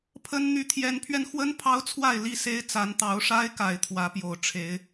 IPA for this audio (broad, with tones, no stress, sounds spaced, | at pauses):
pʰ ə˦ n n̪ y˨˦ t̪ʰ j ɛ˨˦ n pʰ ɥ ɛ˧ n x w ə˦ n pʰ ɑ˦ ʊ̯ t͡sʰ w a˥˨ ɪ̯ l i˥˨ s e˦ ɪ̯ t͡s a˨˦ n t̪ ɑ˨˦ ʊ̯ ʂ a˦ ɪ̯ k a˨˩ ɪ̯ t̪ʰ w ä˨˦ p j o˨˩ ʊ̯ ʈ͡ʂʰ e˨˦ ɪ̯